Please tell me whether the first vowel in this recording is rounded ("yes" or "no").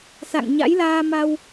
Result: no